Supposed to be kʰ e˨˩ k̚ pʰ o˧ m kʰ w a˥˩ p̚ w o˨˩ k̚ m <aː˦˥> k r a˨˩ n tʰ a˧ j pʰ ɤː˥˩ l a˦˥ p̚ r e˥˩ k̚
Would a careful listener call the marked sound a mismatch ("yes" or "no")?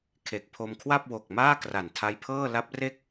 yes